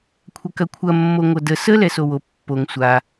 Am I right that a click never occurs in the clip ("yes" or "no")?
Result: yes